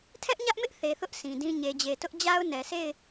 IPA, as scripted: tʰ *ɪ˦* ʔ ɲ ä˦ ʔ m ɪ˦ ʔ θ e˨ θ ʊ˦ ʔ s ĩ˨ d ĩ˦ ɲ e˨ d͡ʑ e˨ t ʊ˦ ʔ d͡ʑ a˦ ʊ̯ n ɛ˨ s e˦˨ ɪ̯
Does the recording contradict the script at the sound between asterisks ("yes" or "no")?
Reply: yes